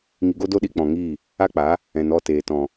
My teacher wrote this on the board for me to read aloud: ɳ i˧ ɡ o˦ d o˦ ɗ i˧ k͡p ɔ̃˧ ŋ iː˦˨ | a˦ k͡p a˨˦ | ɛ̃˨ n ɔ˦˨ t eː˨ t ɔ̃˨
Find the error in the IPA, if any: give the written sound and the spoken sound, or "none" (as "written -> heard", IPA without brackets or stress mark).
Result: ɳ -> ŋ